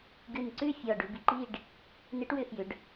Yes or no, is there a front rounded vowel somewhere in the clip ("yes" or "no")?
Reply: yes